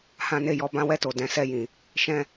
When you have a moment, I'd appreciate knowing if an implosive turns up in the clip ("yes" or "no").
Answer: no